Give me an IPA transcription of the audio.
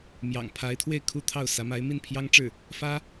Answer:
mjɑ̰˨˩ŋpʰa˧˥ɪ̯t̪ʰwe˥˩ɪ̯ kʰu˥t̪ʰɑ˥˩ʊ̯sä˧˥ ma˧˥ɪ̯mi˥˩npʰjɑ˥ŋʈ͡ʂɻ̩˥˩ | fä˥

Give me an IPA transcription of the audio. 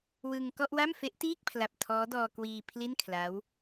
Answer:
wɯ˧ŋ kɔ˥˩ʔwa˥˩m fe˦˥ʔtiː˥˩k̚pʰla˨˩p̚ tʰɔː˦˥dɔː˧ kwiː˧ pʰli˥˩nkʰla˦˥w

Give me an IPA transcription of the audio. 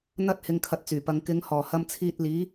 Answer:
n̪ɐ˥t̚ hɪ˧ŋkʰɐ˧t̚t͡syː˨˩pɐ˨˧ŋ kɪ˨˧ŋhɔː˨˩ hɐ˧mt͡sʰiː˧t̚liː˨˥

